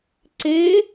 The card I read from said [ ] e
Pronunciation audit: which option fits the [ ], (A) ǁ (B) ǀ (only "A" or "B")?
B